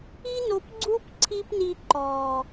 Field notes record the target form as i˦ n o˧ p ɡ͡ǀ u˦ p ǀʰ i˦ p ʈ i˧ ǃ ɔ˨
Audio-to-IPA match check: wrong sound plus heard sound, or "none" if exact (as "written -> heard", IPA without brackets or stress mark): ʈ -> n